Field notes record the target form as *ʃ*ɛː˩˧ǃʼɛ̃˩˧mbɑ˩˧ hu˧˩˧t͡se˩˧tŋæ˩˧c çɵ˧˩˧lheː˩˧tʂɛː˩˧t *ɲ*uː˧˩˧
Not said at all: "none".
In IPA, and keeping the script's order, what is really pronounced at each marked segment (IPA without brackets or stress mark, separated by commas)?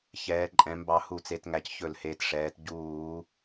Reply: ç, ɟ